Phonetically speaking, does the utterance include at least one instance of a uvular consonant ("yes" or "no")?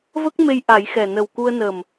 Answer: no